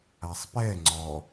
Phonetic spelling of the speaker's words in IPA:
a sˤ p ɛ ŋ͡ǀ ɔ

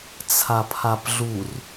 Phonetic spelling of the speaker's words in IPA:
t͡sʰ a pʰ a p ɮ u r

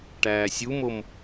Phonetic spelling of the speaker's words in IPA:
ʈ æː sʲ u m o m

